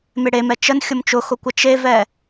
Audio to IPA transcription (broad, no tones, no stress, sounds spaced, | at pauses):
m e ɽ e m ɛ t͡ʃ ə n xʲ ʊ m t͡ʃ ʊ x ʊ kʷ ə t͡ʃ e v ɛ